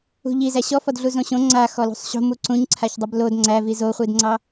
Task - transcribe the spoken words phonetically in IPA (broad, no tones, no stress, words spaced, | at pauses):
ṳʎi zæɕɔfɔdɮu zõɕõ ŋ͡ǀa xɔlṳsˤɕo̤mu ǀũɲǀʰaçdˤəb lod ŋ͡ǀævi zoχʷidŋ͡ǀɑ